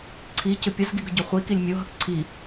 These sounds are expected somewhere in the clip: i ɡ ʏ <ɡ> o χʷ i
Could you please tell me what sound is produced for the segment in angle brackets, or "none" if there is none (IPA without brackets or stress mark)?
ɟ